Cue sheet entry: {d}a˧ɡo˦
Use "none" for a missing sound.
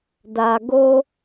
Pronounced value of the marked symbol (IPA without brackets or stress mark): d